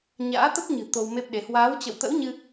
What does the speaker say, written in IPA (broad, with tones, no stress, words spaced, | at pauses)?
ɲa̰ː˧˥t̪ə˦˥p̚ɲɨ̤˨˩ t̪o˧wme˦˥p̚ɗe˨˦ hwaː˨˦w t͡ɕə̰˧˨wt̪ə̰˧˥wɲɨ˧